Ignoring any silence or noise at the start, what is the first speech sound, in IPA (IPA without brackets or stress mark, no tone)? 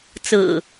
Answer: t͡s